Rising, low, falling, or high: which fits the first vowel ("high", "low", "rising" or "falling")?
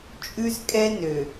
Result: high